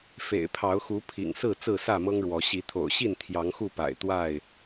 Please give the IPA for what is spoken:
fḛ˨˩ɪ̯pʰɑ˨˦ʊ̯xu˨˦ pʰḭ˨˩ŋsɹ̩˥˨ t͡sɹ̩˥˨sä˥˨mɤ˦ŋɻwɔ˨˦ ɕi˨˦t̪ʰo̰˨˩ʊ̯ɕi˥˨n t̪ʰjɑ˨˦ŋxu˥˨pa̰˨˩ɪ̯ t̪wa˥˨ɪ̯

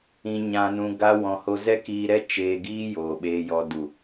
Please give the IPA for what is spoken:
ĩ˧ɲã˧nũ˧ ɡa˦wɔ̃˧ ho˧zɛ˦kiː˧ɾɛ˦ t͡ʃeː˧ɡiː˦ joː˨ɓeː˧jɔ˧ du˨

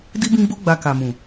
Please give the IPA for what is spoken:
di˦bĩ˦ɡ͡bo˦ ɡ͡ba˧ka˨mũ˨

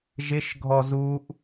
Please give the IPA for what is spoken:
ʒɪʃ ɡʱɔzuʔ

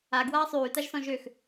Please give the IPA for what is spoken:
a ɡwaːsˤyːtaʒsɔ̃ ʒøx

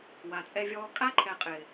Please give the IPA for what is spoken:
wa˨t͡sʼɛ˦vʲɔː˦ kʼa˦ǃʰɛ˨ qʼɪː˨

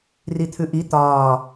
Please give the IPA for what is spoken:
rit̪ʰʉʔi t̪ɒː

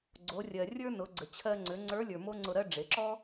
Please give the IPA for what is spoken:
ɡ͡ǀo˩˧rʲɜ˩ rʲə˞˥nʊ˩˧ɡ͡ǀə˩ t͡ɕʰɜ˧ŋ͡ǀʏ˩˧ŋ͡ǀə˞˧˥lʲə˞˩ mo˥ŋ͡ǀʊ˧ɾɜ˥ ɖ͡ʐe˩˧ǁɔ˥

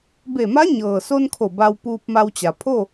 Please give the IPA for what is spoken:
be˧˩ma˧˥ɲɤː˩so˧n kʰo˧˩ba˧w puː˧p̚ma˧wt͡ɕa˩ pʰo˥˨

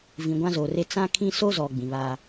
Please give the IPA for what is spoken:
vĩ˨ɡʷã˦zoː˨re˦ t͡sã˦kʰĩ˦ so˦zɔ˨ ɡ͡bĩ˨βaː˦

